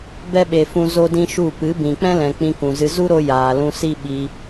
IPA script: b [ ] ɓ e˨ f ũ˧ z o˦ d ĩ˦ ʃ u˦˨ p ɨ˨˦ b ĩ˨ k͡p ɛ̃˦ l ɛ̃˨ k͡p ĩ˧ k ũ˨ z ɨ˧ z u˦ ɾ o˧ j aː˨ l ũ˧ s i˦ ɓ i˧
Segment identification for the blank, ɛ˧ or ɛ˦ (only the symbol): ɛ˦